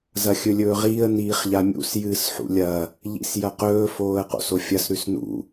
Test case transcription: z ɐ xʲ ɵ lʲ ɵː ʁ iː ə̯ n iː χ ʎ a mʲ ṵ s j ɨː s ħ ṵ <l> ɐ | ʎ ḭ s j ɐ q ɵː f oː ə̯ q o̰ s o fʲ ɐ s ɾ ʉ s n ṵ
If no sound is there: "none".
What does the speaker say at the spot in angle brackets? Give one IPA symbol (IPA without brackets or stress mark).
lʲ